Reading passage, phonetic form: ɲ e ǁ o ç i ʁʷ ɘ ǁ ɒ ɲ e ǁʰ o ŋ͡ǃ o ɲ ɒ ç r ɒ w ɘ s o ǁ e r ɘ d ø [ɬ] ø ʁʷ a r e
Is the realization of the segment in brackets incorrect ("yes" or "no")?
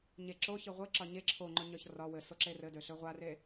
no